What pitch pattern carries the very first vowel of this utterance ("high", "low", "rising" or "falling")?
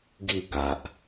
falling